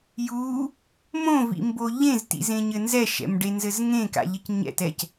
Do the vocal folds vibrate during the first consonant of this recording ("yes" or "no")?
yes